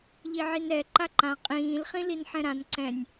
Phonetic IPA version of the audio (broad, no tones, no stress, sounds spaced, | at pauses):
ʎ i ʕ i n ɾ ɛ ǃ a ǃ ã qʼ ĩː l χ ĩ l i n ħ ɛ̃ ɾ ã n ǀ ɛ̃ nʲ